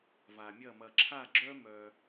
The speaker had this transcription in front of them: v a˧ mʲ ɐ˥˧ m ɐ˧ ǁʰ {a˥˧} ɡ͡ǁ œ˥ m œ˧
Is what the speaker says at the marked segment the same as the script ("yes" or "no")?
yes